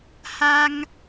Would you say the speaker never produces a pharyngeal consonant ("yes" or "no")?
yes